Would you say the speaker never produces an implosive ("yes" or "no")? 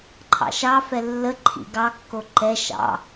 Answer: yes